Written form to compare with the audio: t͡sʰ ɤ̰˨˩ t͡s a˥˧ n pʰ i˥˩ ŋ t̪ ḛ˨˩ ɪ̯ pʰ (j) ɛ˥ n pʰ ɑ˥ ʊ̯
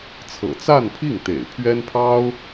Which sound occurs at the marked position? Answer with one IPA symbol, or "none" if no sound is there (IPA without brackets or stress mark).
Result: ɥ